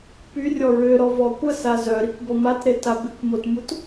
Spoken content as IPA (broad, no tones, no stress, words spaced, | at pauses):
pyrʲɔ ɹøɾɔ vɔkʷəsa zœɾikʷ bɔmatɾe tabikʷmotmut